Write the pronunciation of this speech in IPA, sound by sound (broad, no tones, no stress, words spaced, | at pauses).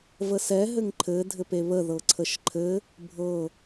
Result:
vəsɛ ɦɘŋǃʰɘ dʱɘpeβə ðɤǀʰəʃǃʰɘ | bʱɤ